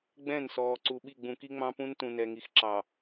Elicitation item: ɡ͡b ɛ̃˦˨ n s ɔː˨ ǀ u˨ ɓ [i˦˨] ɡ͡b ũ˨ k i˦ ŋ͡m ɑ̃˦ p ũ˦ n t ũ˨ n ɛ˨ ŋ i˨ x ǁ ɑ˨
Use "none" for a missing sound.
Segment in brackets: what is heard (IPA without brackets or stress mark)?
i˦˨